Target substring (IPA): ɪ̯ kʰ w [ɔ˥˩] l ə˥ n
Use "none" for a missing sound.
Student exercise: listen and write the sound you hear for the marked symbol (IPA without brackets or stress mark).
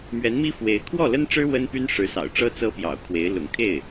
ɔ˥˩